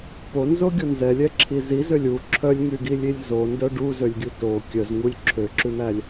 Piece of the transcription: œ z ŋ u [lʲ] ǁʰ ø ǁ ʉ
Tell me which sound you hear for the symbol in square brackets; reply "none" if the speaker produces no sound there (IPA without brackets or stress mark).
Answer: lʲ